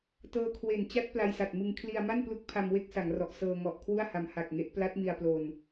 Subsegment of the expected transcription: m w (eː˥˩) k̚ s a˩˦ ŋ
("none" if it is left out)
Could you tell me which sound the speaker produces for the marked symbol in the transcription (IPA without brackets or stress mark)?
e˥˩